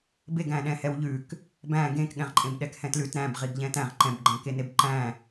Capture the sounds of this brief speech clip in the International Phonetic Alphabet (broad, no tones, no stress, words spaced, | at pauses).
beɡæ̃ɗɛ̃ hɛwʎʉk | bæ̃ ɡẽkɠɛ̃ʁǃʼẽb ɗɛkhɛ̃tlʉt ɾæ̃b ʁiɡʎɛ̃tæ̃ʁ ǃɛ̃bɡ͡ǃæ̃keneb ǃæ̃